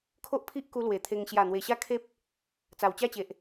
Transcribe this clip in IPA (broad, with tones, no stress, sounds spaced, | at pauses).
kʰ o˦ ʔ pʰ i˦ ʔ k u˧ l w e˨˩ t̪ʰ e˧ ŋ ɕ j a˨˩ n̪ w e˨˩ ɕ a˥˧ kʰ e˦ p̚ | t͡s a˨˩ w t͡ɕ a˥˧ t͡ɕ e˨ ʔ